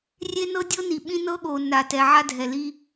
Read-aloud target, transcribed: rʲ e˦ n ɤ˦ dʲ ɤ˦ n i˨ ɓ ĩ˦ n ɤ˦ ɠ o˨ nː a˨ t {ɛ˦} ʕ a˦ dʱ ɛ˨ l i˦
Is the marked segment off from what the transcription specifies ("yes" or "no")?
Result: yes